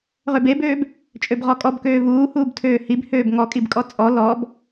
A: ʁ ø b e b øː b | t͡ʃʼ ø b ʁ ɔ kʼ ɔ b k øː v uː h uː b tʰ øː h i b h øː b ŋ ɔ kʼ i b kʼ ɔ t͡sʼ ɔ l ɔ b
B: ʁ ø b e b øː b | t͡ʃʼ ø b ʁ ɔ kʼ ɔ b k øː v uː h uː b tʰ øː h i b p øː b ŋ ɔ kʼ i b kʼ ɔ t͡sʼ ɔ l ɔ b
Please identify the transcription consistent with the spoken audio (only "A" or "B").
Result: A